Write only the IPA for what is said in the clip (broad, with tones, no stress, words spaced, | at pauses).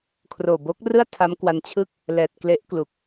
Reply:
kʰroː˨˩bo˦˥k̚rɯ˥˩a̯ tʰa˦˥mkwa˧n t͡ɕʰɯ˥˩k̚ | lɛː˨˩t̚ kle˦˥ʔklu˨˩k̚